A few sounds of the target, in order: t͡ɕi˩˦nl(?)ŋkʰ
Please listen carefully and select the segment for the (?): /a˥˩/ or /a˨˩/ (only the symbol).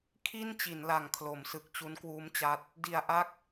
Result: a˨˩